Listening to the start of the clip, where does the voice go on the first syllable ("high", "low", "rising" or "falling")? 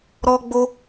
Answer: high